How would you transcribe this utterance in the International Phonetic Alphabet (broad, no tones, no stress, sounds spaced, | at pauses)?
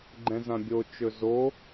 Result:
ɡ͡ǃ ɛ̃ z ã bʲ o t͡ʃ ɵ z o